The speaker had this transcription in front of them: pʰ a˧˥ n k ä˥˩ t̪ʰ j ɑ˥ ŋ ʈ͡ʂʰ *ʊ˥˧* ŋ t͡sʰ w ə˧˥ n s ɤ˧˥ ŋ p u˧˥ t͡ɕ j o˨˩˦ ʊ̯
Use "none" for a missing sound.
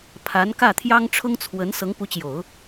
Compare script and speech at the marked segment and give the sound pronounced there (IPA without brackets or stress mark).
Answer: ʊ˥